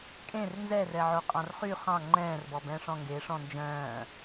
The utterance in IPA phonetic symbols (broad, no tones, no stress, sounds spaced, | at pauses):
kʼ ẽ r n z ɛ r ɛ ʕ o qʼ ɑ̃ r χ y χ ɑ̃ ŋ͡ǃ ɛ̃ː r b ɔ b ɛ̃ː ʂ ɔ̃ ŋ ɡ eː ʂ ɔ̃ n d͡ʒ œ̃ː